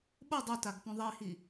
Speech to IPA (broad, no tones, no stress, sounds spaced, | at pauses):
ɓ o dˤ o t a ɡ p õ ðˤ i h i